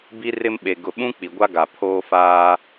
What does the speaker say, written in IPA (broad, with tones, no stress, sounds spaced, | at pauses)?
b i˦ r ɪ˦ m ɓ e˨ ɡ ʊ˨ ɓ ũ˦ k͡p i˨ ɡʷ a˦ ɡ a˨ pʰ oː˦ f aː˦